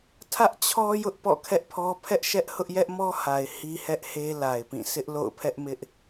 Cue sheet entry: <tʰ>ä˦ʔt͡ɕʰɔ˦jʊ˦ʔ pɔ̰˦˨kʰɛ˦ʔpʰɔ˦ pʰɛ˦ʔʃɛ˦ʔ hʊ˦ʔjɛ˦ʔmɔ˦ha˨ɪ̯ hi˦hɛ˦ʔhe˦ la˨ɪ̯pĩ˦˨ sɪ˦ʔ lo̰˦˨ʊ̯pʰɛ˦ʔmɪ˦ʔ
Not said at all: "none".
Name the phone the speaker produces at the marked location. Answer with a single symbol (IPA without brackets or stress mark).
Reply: tʰ